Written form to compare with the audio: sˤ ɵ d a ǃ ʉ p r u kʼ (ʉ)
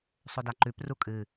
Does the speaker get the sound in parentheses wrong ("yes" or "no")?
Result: yes